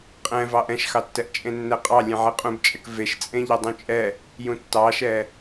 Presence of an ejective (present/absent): present